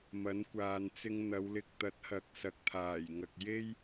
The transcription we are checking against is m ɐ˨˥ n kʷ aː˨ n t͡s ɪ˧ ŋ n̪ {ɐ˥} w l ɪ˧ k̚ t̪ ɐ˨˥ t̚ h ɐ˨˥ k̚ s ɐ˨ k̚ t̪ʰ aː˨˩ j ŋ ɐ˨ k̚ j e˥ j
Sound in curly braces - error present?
yes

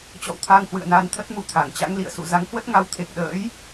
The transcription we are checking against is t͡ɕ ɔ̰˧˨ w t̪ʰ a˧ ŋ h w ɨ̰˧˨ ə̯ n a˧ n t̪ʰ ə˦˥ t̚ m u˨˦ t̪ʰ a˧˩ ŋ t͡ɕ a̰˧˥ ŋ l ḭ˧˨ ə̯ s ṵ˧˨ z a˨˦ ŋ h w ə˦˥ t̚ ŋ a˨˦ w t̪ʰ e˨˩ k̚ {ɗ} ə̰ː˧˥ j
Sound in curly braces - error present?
no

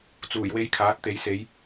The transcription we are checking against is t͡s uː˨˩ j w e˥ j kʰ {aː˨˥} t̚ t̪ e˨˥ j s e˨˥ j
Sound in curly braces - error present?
no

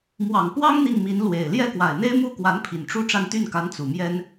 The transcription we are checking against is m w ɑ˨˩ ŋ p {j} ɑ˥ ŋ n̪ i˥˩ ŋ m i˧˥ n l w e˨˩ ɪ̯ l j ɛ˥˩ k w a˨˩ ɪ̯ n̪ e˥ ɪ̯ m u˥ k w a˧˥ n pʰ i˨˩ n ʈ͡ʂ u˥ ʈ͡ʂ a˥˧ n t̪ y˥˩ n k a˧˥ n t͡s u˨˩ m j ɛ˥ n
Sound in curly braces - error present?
yes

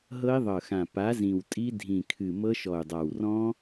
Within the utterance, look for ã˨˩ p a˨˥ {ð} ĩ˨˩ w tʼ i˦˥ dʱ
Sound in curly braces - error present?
yes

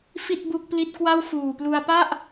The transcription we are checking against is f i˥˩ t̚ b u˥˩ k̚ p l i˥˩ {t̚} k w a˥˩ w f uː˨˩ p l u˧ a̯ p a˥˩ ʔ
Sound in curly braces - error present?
no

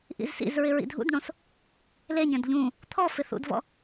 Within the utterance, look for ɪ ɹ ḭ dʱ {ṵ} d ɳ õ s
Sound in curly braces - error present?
no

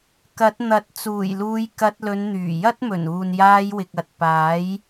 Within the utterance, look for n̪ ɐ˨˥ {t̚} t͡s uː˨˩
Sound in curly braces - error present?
no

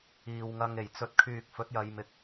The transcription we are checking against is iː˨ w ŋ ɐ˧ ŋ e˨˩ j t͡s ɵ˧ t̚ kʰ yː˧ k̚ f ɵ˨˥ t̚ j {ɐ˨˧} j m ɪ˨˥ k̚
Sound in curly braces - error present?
no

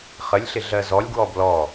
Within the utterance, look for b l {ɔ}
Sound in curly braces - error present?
no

